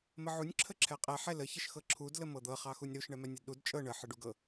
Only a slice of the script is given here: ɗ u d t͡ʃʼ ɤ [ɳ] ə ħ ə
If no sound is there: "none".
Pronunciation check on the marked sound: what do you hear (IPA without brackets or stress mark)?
ɳ